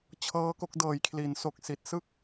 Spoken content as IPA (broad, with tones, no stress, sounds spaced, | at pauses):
t͡ɕʰ ɤː˦˥ k o˦˥ k̚ d ɤː˨˩ j kʰ l i˩˦ n s o˨˩ k̚ s i˨˩ t̚ s ɯ˥˩ k̚